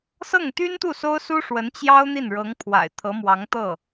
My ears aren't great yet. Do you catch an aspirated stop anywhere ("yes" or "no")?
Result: yes